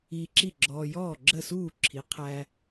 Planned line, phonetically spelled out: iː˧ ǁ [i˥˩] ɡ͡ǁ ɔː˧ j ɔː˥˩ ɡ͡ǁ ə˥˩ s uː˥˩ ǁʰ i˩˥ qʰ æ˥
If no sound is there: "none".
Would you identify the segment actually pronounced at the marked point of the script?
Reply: i˥˩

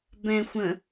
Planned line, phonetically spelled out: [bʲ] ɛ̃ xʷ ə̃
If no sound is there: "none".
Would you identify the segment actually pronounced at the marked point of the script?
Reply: b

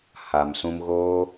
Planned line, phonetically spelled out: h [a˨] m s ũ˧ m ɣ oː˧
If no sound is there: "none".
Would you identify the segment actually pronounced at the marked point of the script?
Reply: a˨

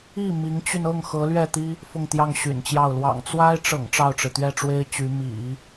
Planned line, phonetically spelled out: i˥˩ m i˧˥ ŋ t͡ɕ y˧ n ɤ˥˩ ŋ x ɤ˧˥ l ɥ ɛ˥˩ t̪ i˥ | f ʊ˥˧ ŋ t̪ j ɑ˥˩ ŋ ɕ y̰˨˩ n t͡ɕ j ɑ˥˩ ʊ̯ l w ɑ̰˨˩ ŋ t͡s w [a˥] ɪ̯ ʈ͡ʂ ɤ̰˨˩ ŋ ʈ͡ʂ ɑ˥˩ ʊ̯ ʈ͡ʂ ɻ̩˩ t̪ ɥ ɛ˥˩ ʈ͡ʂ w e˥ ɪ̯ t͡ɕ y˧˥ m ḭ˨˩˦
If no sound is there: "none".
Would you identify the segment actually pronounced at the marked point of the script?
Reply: a˥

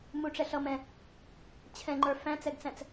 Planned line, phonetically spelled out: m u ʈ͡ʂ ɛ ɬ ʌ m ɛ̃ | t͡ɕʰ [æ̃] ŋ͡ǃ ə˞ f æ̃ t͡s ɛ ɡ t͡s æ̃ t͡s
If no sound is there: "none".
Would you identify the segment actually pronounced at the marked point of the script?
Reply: ɛ̃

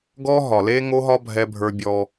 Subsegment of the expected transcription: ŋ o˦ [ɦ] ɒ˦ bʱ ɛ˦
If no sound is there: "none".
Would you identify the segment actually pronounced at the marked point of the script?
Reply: ɦ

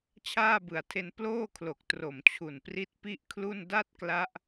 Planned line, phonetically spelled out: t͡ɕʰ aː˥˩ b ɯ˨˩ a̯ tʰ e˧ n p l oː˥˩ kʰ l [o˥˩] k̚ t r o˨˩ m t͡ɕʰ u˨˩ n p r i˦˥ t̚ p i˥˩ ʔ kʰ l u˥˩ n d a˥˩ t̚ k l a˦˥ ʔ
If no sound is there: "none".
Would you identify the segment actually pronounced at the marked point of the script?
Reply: o˨˩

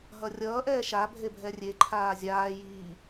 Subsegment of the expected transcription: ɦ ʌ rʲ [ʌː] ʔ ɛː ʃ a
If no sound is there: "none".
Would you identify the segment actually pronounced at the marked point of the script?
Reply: ʌː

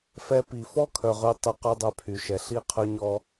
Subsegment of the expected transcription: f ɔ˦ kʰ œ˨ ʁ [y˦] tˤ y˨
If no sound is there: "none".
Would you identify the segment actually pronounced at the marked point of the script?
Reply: y˧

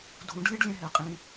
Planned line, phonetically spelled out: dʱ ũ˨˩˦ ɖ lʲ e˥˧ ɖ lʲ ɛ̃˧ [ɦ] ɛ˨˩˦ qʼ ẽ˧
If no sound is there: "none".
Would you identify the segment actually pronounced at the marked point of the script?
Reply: ɦ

